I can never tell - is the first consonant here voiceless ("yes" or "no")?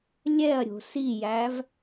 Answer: no